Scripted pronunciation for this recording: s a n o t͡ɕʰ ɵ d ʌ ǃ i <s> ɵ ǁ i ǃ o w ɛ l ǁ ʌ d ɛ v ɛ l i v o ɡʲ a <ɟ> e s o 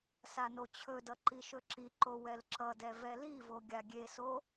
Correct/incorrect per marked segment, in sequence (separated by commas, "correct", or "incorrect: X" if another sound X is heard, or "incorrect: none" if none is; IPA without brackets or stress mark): incorrect: ʃ, incorrect: ɡʲ